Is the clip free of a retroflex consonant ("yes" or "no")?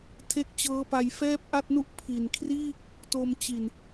yes